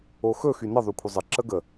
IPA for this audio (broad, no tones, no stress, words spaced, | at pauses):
oxɵ xynə ðˤykʷʰəzˤə ǁəɡə